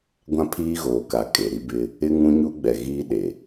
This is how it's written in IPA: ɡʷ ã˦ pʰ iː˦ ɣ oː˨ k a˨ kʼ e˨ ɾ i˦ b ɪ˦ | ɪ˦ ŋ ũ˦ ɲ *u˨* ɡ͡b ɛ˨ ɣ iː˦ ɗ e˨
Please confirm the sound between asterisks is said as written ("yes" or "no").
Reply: no